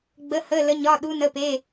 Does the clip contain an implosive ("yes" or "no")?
yes